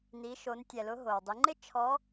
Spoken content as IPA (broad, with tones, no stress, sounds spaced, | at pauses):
n i˩˧ ʃ o˩˧ n tʲ ɛ˩ l ʊ˩˧ ɦ o˩ w dˤ i˩˧ ŋ͡ǃ ɪ˥ t͡ʃʰ ɔ˧˥